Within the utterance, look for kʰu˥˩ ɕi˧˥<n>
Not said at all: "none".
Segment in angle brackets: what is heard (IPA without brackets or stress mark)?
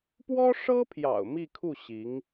ŋ